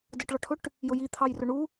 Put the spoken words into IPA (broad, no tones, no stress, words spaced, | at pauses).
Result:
dəʈɭɒʈʰʊʈ | jʊji t̪ʰɑjrʊɳu